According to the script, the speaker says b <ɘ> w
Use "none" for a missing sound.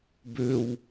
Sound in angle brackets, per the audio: ø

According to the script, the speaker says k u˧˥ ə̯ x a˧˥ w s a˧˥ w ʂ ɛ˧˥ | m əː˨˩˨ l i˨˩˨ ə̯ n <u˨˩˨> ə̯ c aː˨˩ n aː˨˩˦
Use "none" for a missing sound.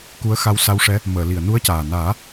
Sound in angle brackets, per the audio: u˧˥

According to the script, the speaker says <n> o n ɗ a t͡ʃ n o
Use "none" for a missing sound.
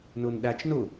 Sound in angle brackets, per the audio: n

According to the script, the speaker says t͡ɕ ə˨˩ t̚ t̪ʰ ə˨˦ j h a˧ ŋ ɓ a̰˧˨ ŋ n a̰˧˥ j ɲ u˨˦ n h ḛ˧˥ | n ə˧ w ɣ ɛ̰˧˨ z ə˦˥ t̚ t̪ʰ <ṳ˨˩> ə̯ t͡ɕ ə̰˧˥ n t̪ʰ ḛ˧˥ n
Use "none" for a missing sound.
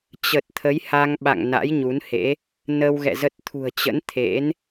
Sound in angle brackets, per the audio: ṳ˨˩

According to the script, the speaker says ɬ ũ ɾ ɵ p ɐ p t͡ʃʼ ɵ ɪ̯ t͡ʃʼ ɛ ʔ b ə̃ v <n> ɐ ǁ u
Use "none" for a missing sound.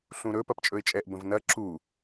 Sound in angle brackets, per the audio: n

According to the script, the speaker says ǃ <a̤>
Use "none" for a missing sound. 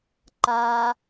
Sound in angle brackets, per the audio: a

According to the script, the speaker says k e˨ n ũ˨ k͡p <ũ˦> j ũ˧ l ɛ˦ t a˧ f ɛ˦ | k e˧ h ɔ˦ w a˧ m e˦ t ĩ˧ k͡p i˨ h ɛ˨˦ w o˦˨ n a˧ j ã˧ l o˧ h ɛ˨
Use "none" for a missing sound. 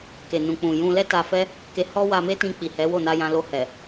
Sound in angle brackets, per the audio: ũ˨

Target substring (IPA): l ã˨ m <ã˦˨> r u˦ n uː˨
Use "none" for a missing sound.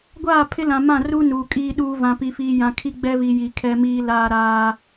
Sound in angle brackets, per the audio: ã˦˨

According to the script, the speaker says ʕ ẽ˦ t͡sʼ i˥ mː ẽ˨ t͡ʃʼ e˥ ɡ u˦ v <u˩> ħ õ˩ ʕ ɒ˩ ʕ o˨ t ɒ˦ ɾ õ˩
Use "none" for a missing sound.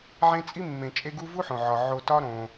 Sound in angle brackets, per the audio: u˥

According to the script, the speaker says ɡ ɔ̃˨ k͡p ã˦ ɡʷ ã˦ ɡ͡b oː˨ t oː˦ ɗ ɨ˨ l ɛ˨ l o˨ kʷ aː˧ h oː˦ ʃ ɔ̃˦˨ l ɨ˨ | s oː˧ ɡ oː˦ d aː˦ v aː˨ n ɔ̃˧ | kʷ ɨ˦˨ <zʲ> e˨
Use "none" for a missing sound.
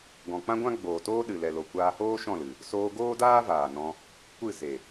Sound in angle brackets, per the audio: z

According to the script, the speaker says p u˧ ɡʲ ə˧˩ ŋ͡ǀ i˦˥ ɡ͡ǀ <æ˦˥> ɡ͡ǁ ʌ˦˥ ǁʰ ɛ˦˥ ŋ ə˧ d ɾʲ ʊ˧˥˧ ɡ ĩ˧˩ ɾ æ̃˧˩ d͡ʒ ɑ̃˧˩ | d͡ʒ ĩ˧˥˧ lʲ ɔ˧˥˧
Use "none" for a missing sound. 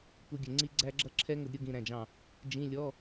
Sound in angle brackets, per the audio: æ˦˥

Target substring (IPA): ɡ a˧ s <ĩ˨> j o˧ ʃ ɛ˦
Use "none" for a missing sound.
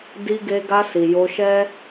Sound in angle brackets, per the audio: i˨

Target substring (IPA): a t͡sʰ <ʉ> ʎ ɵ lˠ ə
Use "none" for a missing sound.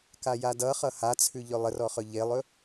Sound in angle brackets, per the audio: ʉ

